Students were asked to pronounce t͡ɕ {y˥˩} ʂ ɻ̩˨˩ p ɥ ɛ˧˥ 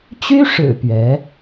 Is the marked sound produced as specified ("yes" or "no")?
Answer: no